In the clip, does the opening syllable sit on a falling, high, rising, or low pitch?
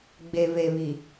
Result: low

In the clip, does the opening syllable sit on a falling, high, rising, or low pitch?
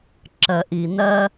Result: low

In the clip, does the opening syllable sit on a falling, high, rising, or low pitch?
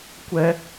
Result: high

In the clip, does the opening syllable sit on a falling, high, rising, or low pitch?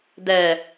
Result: low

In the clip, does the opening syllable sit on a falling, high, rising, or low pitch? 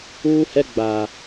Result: high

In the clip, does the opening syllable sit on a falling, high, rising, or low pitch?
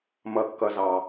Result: low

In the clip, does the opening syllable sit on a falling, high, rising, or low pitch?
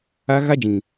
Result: high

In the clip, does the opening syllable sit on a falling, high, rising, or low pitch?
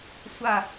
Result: falling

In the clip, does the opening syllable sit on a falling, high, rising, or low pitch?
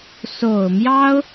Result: low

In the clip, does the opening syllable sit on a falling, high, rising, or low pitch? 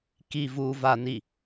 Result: low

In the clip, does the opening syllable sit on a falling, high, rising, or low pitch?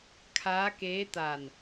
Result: rising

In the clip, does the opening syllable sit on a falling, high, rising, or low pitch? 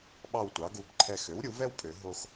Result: falling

